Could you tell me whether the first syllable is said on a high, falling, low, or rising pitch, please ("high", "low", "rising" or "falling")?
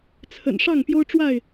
low